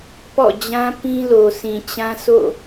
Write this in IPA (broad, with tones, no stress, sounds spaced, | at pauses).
p ɔ̰˦˨ d͡ʑ ã˦ p ĩ˦ l o˨ s ĩ˨ t͡ɕ ã˦ s o̰˦˨